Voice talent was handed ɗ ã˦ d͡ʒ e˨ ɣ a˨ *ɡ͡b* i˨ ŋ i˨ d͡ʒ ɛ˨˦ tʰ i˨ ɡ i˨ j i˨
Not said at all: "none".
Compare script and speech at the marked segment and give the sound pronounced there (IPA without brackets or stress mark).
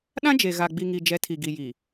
ɡ͡b